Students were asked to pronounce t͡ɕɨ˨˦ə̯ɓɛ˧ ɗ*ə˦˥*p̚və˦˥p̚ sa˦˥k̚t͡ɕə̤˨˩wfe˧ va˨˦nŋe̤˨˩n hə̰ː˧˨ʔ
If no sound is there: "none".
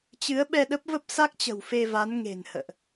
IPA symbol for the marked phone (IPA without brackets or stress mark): ə˦˥